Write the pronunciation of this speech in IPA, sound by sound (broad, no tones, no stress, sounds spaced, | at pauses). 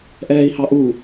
ʔ ɛː i̯ h ɑ ʔ u